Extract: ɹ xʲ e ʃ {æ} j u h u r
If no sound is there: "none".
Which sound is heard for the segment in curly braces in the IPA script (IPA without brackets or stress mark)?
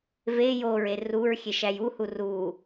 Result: æ